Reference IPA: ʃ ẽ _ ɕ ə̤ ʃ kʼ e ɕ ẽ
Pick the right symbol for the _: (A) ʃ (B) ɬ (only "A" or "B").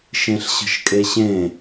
B